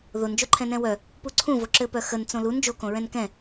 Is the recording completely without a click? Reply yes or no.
no